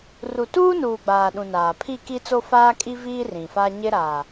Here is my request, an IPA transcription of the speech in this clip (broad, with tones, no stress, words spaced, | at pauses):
ru˨tuː˦nuː˨ ɡ͡baː˨ɗũ˨ naː˨ pʰi˦˨ki˦t͡so˦faː˦ kʼi˦viː˦ rĩ˨fa˦ ɲɪ˦ɾa˨